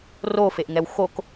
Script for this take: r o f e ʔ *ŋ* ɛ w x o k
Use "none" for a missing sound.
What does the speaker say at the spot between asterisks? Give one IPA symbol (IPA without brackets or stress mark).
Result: ŋ